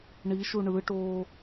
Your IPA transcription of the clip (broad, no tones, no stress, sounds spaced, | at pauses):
ɳ i ʃ u ɳ ɯ ʈ oː